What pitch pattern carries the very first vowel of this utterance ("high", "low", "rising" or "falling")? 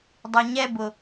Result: low